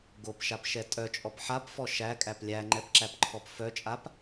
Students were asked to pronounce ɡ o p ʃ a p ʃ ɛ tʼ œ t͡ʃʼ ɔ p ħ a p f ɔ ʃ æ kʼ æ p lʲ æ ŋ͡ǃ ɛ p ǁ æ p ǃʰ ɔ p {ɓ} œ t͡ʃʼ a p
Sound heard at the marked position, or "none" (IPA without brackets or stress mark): f